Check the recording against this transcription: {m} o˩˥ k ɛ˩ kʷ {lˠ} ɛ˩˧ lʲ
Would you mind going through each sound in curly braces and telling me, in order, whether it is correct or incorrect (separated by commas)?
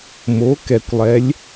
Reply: correct, correct